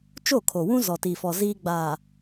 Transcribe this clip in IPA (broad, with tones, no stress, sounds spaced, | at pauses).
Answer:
t͡ʃ o˦˨ kʰ o˨ w ũ˦ z ɔ˨ t i˨ f ɔ˨ z iː˦ ɡ͡b aː˨